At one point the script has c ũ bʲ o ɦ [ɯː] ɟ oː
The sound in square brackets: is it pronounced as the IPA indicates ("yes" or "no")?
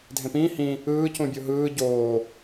yes